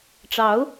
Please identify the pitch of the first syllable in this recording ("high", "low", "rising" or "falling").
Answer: rising